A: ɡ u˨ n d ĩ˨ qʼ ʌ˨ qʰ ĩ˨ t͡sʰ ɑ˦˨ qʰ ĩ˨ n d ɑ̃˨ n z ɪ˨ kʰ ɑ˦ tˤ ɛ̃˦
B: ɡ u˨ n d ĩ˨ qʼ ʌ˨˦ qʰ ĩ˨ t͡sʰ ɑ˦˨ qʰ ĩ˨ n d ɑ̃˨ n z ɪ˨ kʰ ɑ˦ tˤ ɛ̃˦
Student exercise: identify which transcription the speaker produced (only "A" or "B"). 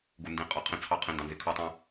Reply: A